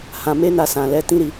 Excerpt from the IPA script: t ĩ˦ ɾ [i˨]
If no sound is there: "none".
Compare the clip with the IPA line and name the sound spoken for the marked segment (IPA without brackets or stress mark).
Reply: i˧